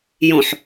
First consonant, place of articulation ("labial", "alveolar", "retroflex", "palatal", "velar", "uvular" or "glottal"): palatal